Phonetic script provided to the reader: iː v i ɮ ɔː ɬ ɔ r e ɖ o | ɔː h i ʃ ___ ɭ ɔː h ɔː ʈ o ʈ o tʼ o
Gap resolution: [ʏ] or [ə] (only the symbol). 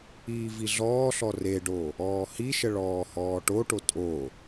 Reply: ə